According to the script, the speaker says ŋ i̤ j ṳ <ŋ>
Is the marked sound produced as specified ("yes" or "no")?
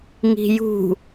no